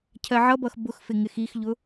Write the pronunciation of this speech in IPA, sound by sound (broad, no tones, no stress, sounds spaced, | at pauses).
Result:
cʰ ɜ ʕ ʌ b ʌ x b ʊ x f ɪ ŋ ɪ x i x ʎ ʊ